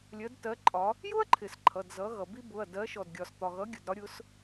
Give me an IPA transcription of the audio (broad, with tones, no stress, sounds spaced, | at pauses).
lʲ ɜ˨˥ d t ɜ˨˥ ǃʼ ɒ˨˥ | j ʊ˥ ɐ̯ ǃʰ ɪ˩ s ǃʰ ʌ˩˧˩ d z ʌ˨˥ ɣ ʌ˩ b i˥ b ʊ˩˧˩ ɐ̯ d ɜ˨˥ ʃ ɔ˩ d ɡʲ ɒ˩ s t̪ ɒ˩ ɣ ʌ˨˥ ɡʲ ʊ˩˧˩ d ɾ ɒ˨˥ ɾʲ ʊ˨˥ s